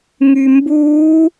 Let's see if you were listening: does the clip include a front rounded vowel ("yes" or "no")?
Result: yes